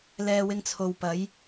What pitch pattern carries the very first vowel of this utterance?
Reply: low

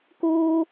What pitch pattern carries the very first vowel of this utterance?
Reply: high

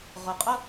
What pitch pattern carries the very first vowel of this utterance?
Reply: low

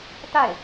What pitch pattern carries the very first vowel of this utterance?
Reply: falling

